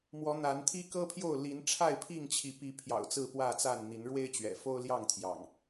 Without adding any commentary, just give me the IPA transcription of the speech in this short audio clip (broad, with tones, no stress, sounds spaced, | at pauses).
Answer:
m w ɔ˨˦ n̪ a˨˦ n t̪ʰ i˦ k ɤ˦ pʰ j o˥˨ ʊ̯ l i˨˦ n ʈ͡ʂʰ a˥˨ ɪ̯ pʰ i˥˨ ŋ t͡ɕʰ i˨˦ p i˨˦ pʰ j ɑ̰˨˩ ʊ̯ t͡s ɹ̩˥˨ p w ä˥˨ t͡s a˥˨ n n̪ i˨˦ n ɻ w e˦ ɪ̯ t͡ɕ ɥ ɛ̰˨˩ f o˦ ʊ̯ l j ɑ˥˨ ŋ t̪ʰ j ɑ̰˨˩ ŋ